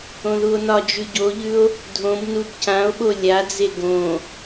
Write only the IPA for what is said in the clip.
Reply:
õðuo̯nɒd͡ʒʉ ɟoʎʉo̯ | dʱõb nubcão̯ɓo lʲad͡ze ɡõ

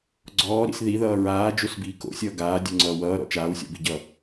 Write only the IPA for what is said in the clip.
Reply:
ɡ͡ǀɔːɾḭs ðiðʌː ɹaːd͡ʒosbiː ko̰sʲʌː ɡaːdʲoŋ͡ǀʌː wʌːɾɔ̰ t͡ʃaːwsʲɔ̰biɟʌ

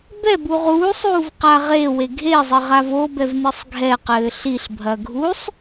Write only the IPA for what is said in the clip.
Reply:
bɛbu ʁuːsˤ uːvqaʁewe ɡʱezˤɘ ʁavobɛv nɨsˤɡʱɛqɘː ɬiɬbʱɐ ɡʱusˤ

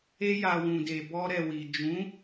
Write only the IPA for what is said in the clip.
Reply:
e˧ja˨ wũ˨de˨ bɔ˧ɾɛ˨wi˨ d͡ʒũ˨˦

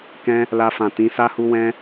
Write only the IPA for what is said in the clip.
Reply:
kɛ̃˦ | la˧fã˨tĩ˨˦ sa˦hu˦ wɛ̃˦

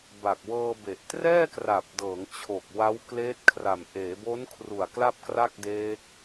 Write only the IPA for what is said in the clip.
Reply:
ba˨˩k̚wɤː˧be˨˩ʔ trɛː˥˩kra˨˩p̚dɤː˩˦ŋ t͡ɕʰo˨˩k̚ wa˦˥wkleː˦˥t̚kʰra˨˩m ʔeː˩˦bo˦˥nkʰru˨˩a̯ kla˥˩p̚kra˥˩k̚deː˦˥k̚

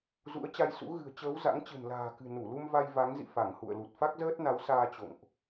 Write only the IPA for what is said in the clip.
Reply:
zṵ˧˥ə̯t͡ɕa˧jsṵ˧˥ ɣɨ̤˨˩ə̯t͡ɕəː˨˦w za̰˧˥ŋt͡ɕɨ̤˨˩n la̤ː˨˩kɨ̤˨˩ nu˧˩lu˧m va˧jva˨˦ŋzḭ˧˨ fa˧˩ŋhṵ˧˨ə̯lu˨˩t̚ fa˦˥k̚zəː˦˥t̚na˨˦wsaː˧ t͡ɕo̰˧˨ŋʔ

